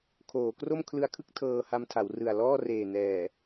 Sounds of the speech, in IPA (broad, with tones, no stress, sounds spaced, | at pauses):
kʰ oː˩˦ k r o˥˩ m kʰ l ɯ˧ a̯ kʰ ɯ˥˩ k̚ tʰ ɤː˧ h a˧ m tʰ a˩˦ w r ɯ˨˩ a̯ l ɔː˥˩ r eː˨˩ n ɛː˨˩